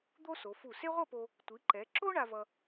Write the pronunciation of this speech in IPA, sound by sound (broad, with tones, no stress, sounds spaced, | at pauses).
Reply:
d̪ o˥ s o˩˧ f u˧˩ s e˥ ʁʷ ʌ˥˧ p o˧ | tʷ i˩˧ ǃ ɛ˩˧ ǁ o˥ ɳ a˧ v ʌ˧